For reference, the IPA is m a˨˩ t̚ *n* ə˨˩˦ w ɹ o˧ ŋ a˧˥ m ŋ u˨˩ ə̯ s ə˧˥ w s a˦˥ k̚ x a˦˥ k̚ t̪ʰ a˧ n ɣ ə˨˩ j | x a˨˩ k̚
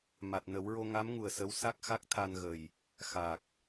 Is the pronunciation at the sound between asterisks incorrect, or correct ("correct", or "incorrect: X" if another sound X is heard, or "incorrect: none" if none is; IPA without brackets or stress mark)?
correct